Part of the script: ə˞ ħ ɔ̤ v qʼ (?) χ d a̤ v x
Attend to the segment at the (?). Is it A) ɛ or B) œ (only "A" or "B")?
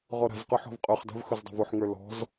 B